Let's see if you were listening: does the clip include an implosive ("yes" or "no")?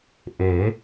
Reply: no